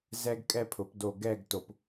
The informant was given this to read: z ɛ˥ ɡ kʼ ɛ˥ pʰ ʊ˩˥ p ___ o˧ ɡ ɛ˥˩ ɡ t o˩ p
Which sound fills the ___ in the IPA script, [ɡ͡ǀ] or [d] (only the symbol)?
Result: d